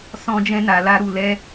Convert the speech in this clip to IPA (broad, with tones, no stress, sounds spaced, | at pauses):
s ɔ̃˦ d͡ʒ ɛ̃˦ n a˧ l a˦ ɾ u˧ l ɛ˦